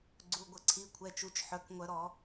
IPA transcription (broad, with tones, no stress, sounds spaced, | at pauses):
ɡ͡ǀ u˩˧˩ ɡʷ ə˧˩˧ ǀʰ i˩˧˩ kʷʰ ɛ˩˧˩ t͡ʃ u˩˧˩ t͡ʃ ħ œ˩˧˩ k ŋʷ œ˧˩˧ ɾ ɔ˧˩˧